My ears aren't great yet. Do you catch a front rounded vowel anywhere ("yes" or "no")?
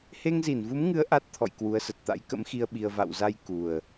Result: no